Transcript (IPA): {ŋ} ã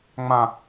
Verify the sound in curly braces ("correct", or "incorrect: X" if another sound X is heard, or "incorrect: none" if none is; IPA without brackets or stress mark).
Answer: incorrect: ŋ͡m